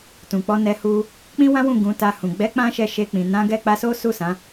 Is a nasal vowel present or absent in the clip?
present